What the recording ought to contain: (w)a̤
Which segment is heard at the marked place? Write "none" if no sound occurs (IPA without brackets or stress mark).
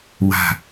w